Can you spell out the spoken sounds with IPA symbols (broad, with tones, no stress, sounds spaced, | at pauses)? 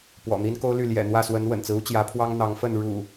p w ɔ̰˨˩ n̪ i˦ n k o˦ ʊ̯ l y˥˨ l j ɛ̰˨˩ n̪ w ä˥˨ s w ə˨˦ n w ə̰˨˩ n t͡s ɹ̩˦ u˦ t͡ɕ j ä˨˦ pʰ w ɑ˦ ŋ n̪ ɑ˨˦ ŋ f ə˥˨ n ɻ ṵ˨˩